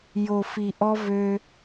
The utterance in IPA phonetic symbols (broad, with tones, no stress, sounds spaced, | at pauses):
j o˨ f i˨ ʔ ɔ˦ v ø˦